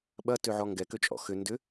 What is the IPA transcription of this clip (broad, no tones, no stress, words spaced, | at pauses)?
ɓɐtøʕɔ ŋɡɛkøt͡ʃʼɔ̰ xʏ ndʏ